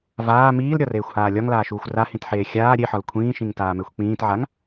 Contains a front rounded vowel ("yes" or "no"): no